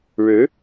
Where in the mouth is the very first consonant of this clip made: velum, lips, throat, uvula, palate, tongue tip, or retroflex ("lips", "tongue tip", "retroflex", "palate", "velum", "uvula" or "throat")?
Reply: retroflex